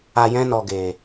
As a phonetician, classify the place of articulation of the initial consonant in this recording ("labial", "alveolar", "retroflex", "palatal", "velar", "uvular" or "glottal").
palatal